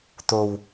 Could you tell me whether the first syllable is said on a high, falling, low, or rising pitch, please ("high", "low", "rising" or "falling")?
low